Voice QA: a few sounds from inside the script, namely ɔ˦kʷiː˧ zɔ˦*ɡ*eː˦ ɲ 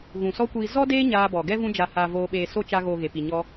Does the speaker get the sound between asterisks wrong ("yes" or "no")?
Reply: yes